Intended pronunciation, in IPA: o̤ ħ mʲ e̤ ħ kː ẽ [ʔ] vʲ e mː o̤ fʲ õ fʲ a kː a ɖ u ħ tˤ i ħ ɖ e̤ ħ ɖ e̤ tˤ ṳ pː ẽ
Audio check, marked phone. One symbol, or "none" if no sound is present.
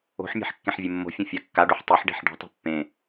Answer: ħ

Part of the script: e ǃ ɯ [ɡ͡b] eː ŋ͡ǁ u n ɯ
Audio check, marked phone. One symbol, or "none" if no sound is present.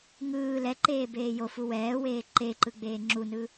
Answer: ɡ͡b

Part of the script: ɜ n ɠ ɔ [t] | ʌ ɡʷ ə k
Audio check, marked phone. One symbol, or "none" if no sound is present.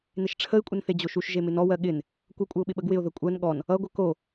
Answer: n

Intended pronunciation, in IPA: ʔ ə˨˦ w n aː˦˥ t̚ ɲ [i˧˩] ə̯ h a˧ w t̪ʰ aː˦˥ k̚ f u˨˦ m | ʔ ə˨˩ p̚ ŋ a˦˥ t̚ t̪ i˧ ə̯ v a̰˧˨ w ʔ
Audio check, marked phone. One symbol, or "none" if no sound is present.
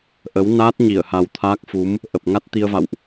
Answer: i˧˩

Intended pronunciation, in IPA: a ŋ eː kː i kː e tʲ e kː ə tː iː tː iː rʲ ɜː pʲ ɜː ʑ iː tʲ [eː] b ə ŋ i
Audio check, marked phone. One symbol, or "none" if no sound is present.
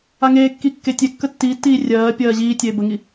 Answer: eː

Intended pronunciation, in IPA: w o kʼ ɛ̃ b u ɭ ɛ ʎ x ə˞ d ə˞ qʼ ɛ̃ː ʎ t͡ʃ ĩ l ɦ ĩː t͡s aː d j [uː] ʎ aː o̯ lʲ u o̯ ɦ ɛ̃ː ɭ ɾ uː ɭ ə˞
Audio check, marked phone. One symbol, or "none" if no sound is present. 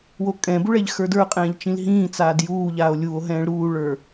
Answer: uː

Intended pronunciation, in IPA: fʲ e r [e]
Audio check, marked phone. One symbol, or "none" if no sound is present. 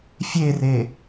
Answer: e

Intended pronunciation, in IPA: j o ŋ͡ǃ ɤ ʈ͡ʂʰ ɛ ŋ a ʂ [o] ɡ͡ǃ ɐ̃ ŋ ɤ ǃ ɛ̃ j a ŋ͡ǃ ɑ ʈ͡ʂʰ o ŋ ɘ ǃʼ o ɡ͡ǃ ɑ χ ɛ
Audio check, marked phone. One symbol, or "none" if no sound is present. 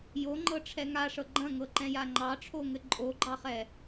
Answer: ɤ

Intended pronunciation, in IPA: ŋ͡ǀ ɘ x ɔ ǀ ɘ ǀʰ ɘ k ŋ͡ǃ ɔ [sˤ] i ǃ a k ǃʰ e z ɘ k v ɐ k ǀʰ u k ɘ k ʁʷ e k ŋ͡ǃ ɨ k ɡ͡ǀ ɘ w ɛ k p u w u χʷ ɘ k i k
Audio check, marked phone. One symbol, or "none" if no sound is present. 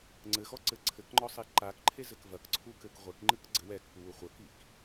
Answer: sˤ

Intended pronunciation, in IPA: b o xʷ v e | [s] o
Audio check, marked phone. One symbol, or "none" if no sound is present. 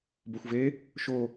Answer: ʃ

